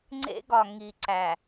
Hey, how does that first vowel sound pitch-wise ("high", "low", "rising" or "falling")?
high